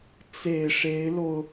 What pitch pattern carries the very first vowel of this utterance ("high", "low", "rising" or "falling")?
low